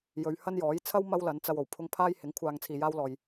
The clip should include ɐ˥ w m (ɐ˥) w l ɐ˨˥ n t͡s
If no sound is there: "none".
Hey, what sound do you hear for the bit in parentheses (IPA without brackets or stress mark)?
ɐ˥